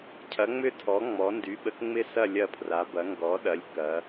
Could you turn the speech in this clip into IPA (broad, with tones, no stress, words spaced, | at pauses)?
cʰɐ˩˥ŋ͡mʏ˥˨tʰɔ˩˥ ŋ͡mɔ˩˥ ndy˩˥ɓə˩˥kŋ͡mɪ˥˨sɐ˥˨ lʲɐ˥˨pʰra˩˥bɐ˩˥ ŋɡɔ˩˥ɗɐ˩˥lʲ kɐ˩˥